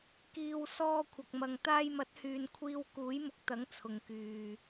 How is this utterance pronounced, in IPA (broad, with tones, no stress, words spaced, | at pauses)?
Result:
kiː˨w sɔː˧ kʷʰɐ˨k̚mɐ˨ŋ t̪aː˧jmɐ˨˥t̚hyː˨n kʷʰiː˧wkuː˨˥jmʊ˨˥k̚t̪ɐ˨˥ŋ t͡sʰʊ˨ŋkyː˨